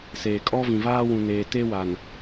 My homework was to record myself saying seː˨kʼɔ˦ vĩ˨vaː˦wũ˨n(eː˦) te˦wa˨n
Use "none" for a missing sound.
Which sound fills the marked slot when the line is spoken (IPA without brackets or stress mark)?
eː˨